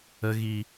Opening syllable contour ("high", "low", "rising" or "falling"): low